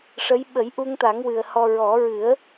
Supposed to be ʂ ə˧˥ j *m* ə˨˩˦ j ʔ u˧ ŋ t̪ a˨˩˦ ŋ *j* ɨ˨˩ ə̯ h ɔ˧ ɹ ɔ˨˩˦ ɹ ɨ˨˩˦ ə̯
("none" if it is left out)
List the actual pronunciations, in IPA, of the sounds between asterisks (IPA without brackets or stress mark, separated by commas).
ɓ, w